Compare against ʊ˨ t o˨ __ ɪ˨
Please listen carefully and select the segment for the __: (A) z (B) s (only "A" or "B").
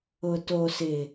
B